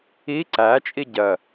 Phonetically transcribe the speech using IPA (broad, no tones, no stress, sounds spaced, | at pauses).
i ǀ æ t͡ʃʼ i ɟ ɜ